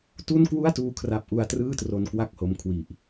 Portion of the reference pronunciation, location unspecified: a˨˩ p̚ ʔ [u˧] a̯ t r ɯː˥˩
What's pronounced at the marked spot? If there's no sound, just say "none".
u˧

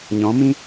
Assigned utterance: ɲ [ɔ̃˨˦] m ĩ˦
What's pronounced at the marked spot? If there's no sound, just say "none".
ɔ̃˨˦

